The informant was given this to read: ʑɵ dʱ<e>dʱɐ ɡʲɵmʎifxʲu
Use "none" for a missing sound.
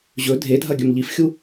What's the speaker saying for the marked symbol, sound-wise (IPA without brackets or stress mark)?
e